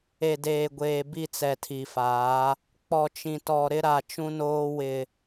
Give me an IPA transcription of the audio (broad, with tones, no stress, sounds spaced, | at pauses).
e˨ d eː˨ ɡʷ eː˨ b i˦˨ t͡s ɛ˨ tʰ i˨ f aː˨˦ | k͡p ɔ˨ t͡ʃ ĩ˨ t ɔ˨ ɾ ɪ˦ ɾ a˨ t͡ʃ ũ˦ n oː˦ w ɪ˦